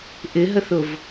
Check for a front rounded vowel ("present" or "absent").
absent